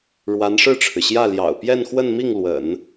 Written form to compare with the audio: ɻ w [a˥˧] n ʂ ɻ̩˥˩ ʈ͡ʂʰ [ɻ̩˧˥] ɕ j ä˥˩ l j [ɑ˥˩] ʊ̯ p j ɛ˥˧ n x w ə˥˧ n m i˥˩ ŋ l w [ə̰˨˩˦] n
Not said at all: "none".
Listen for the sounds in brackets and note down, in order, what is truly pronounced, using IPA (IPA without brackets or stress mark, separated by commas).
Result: a˧˥, ɻ̩˩, ɑ̰˨˩, ə̰˨˩˦